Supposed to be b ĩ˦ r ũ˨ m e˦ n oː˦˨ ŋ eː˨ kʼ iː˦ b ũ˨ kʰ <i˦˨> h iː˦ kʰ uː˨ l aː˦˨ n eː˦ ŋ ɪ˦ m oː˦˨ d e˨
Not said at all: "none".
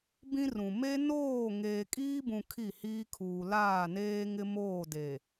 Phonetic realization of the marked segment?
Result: i˦˨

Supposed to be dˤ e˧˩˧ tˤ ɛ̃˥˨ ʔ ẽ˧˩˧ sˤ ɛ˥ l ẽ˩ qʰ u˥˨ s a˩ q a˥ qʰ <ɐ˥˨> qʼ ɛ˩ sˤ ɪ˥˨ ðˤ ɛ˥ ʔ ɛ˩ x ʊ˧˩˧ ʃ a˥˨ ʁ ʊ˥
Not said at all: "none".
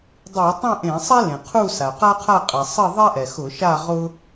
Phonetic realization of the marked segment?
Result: a˥˨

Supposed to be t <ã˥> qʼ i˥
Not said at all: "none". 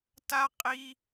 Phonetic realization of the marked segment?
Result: a˥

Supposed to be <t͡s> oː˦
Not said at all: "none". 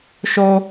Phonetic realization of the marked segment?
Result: ʃ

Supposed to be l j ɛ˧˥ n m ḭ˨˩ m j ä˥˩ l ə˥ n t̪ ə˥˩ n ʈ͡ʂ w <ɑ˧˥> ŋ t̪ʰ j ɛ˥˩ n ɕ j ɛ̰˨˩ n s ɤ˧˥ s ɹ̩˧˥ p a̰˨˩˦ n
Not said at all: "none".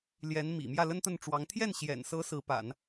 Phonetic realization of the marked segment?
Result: ɑ˧˥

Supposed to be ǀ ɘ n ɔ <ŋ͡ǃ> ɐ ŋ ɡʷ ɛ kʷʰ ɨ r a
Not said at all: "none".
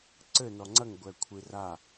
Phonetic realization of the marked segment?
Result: ŋ͡ǀ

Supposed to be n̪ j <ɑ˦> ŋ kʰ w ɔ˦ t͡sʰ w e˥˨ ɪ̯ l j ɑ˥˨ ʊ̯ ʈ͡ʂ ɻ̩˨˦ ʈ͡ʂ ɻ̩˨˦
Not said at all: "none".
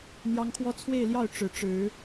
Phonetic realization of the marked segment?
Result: ɑ˦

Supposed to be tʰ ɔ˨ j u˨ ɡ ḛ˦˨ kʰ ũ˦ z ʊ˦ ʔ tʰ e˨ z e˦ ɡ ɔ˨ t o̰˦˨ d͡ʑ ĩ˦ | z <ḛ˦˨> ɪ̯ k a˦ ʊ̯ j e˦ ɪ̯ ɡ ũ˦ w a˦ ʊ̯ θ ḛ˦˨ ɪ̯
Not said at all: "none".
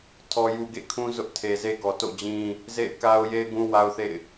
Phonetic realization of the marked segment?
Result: ḛ˦˨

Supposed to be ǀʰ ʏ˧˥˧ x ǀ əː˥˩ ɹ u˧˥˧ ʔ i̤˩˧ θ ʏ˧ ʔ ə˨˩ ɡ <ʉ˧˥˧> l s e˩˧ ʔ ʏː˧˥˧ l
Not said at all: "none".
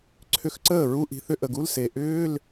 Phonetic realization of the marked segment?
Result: u˧˥˧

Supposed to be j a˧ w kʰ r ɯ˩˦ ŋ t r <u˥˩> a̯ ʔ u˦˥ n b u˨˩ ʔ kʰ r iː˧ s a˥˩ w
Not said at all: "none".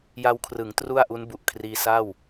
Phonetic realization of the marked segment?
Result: u˥˩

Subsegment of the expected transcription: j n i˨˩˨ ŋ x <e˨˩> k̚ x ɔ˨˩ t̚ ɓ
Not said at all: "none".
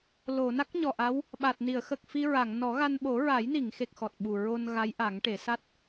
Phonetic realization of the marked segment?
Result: e˨˩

